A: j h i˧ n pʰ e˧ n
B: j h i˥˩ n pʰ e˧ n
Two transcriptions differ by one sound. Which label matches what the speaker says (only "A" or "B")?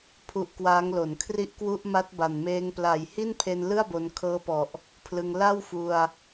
B